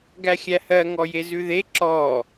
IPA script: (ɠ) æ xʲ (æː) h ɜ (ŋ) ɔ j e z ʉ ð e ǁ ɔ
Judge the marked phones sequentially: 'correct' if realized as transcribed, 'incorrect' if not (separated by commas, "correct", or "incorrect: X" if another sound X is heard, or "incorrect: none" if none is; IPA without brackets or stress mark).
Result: incorrect: ɡ, incorrect: æ, correct